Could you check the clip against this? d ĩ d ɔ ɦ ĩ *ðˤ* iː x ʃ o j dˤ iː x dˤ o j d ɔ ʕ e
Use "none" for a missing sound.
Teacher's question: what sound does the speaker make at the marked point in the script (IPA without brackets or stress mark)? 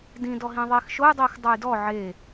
ðˤ